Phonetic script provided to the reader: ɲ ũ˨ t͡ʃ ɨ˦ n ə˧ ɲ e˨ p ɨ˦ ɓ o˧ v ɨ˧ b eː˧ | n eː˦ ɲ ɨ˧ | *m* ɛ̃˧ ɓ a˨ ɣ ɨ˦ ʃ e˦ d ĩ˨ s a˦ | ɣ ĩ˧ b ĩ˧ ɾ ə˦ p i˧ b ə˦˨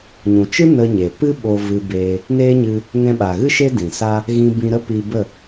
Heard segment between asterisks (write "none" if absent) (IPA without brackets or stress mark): ŋ